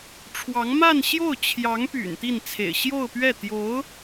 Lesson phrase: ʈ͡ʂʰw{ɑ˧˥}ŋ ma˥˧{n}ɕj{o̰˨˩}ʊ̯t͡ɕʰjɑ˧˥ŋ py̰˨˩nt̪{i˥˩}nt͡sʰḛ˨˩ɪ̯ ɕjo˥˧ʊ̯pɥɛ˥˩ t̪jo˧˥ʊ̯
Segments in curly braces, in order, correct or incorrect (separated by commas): correct, correct, incorrect, correct